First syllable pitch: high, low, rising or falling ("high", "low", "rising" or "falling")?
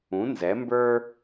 rising